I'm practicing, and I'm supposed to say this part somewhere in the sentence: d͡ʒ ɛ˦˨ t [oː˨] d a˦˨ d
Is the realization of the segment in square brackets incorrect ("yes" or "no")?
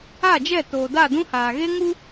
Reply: no